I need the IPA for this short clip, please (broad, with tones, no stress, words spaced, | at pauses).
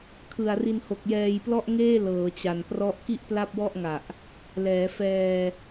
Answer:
kʰɯ˨˩a̯ri˧n ho˨˩k̚jɛː˧jplɔ˥˩ʔŋeː˥˩ lɤː˩˦t͡ɕa˨˩n prɔ˦˥ʔ ki˥˩ʔpla˥˩p̚wɔ˥˩ʔŋa˨˩ʔ | lɛː˩˦fɛː˧